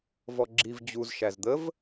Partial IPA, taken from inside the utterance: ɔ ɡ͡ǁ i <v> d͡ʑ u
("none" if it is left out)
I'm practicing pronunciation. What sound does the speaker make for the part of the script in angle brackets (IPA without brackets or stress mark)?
v